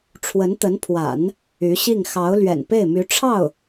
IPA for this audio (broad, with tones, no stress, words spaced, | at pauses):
ʈ͡ʂʰwə˧˥nt̪ə˧˥npʰwa̰˨˩˦n | y˧˥ɕi˥˩ŋ xɑ˧˥ʊ̯ lɥɛ̰˨˩npe˥˩ɪ̯my˧˥ ʈ͡ʂʰɑ˥˩ʊ̯